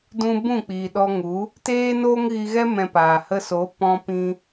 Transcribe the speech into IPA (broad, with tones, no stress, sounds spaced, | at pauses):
d ũ˦ b ũ˦˨ k͡p iː˨ ɗ ɔ˧ ŋ u˨˦ | t eː˦ n oː˦ ŋ ɣ i˧ ɣ ɛ˦ m ɛ̃˧ p aː˨ h ə˧ s o˨˦ p ɔ̃˧ p ĩ˧